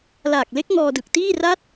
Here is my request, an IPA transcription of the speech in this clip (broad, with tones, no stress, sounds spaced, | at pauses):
l aː˨˩ k̚ l e˦˥ k̚ ŋ ɔː˧ d ɯ˨˩ k̚ t iː˥˩ r a˥˩ t̚